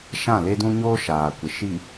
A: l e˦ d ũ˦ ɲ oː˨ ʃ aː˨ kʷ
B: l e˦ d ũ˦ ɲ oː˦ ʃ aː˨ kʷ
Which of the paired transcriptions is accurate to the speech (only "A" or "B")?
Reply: B